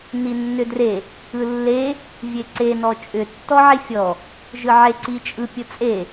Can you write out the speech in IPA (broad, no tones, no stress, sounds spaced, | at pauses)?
n i nː ʏ d r e | ɯ lː e | vʲ e ǀ e n ɔ t͡ʃʼ ʏ tː ɔ ʕ i fʲ ɔ | ʒ ɯ ʕ e ǀ i t͡ʃʼ ɯ pʲ ɯ t͡sʼ e